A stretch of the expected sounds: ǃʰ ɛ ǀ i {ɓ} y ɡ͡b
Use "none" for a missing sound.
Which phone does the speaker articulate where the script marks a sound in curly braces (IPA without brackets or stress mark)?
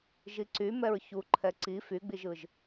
f